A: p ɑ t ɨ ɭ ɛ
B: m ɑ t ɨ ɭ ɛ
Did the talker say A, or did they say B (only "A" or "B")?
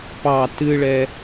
A